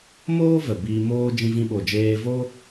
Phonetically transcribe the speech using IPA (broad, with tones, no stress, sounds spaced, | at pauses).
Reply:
m oː˦ v ə˨ b iː˧ m oː˧ d͡ʒ ĩ˧ v ĩ˧ ɓ o˨ d͡ʒ eː˧ v o˦